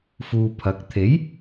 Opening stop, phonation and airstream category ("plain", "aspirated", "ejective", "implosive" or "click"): aspirated